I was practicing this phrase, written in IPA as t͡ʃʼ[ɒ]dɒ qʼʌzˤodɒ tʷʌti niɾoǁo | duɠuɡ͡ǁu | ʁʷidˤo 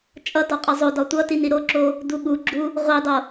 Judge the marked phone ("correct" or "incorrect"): incorrect